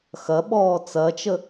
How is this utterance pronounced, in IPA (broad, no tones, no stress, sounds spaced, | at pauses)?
x ɐ ɓ ɔː t͡s ɐ t͡ʃ ə